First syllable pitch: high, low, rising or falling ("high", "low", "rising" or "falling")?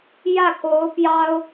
falling